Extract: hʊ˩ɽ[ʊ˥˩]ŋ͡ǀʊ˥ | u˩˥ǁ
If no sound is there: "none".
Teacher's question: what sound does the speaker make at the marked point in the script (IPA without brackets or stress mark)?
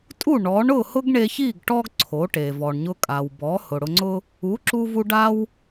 ʊ˧